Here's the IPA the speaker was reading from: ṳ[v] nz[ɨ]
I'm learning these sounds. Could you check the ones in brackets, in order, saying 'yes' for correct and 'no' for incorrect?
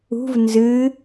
yes, yes

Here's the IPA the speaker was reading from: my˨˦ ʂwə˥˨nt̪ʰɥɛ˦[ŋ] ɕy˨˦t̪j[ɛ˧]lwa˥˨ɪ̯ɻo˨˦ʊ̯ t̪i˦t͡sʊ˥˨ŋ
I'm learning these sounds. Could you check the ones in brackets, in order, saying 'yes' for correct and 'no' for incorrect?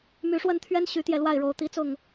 no, yes

